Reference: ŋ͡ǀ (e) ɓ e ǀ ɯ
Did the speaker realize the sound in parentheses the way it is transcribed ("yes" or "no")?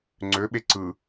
no